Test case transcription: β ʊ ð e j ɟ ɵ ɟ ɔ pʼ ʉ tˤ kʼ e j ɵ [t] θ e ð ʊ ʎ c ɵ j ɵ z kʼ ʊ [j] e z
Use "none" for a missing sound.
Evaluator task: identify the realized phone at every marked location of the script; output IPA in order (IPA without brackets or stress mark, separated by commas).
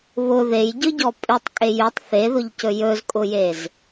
tˤ, j